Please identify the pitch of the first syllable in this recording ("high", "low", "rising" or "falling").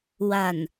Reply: low